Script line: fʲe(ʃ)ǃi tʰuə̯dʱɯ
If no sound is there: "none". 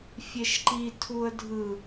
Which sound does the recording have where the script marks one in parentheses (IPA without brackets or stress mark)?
ʃ